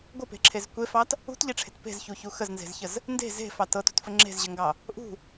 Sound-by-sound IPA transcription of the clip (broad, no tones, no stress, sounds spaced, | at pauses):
ɡʷ ə p e̤ ǁʰ e z kʷ e f ɑ t | ṳ t ʎ e ʈ͡ʂʰ e̤ t p e̤ z ç u ç u x ə z n z e̤ z ç ə z | n d e̤ z e̤ f ɑ t ɤ t ṳ t f ə ŋ͡ǁ e̤ z ʑ ə ŋ ɡ ɑ | ʔ ṳ